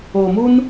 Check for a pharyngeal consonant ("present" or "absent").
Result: absent